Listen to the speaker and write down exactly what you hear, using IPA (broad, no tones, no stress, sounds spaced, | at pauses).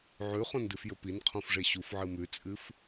ʕ ʉ χ õ n d ɨ f j ɵ p i n qʰ õ f ʐ e ɕ u f ʕ ɨ m ʉ t͡sʼ ɨ f